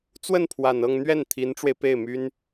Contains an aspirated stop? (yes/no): yes